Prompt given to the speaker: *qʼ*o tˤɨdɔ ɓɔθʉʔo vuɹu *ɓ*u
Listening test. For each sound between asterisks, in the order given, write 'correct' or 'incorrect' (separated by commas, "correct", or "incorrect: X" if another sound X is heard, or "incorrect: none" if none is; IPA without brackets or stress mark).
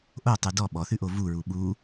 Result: incorrect: ʔ, correct